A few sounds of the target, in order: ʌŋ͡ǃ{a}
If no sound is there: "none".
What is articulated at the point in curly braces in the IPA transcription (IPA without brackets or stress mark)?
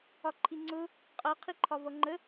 ə